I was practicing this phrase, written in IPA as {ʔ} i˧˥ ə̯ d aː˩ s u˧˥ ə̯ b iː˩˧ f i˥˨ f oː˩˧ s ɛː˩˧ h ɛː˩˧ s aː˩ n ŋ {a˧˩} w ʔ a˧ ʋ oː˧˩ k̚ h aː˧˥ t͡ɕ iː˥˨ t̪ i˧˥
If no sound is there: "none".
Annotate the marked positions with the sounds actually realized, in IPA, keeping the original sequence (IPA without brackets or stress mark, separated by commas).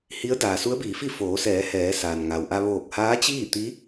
h, a˩